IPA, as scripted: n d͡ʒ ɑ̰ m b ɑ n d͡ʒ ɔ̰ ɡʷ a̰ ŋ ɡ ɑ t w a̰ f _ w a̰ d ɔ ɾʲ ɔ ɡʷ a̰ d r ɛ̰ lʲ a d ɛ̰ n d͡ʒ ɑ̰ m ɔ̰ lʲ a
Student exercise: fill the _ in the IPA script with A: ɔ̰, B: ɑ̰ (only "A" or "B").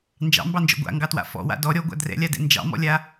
A